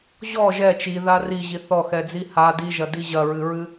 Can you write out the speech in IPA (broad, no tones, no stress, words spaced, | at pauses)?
ʑɔ ʒɛ t͡ʃiða riʑi θɔxɛd͡zi ha diʒɐdi ʑɐɹɨɹɨ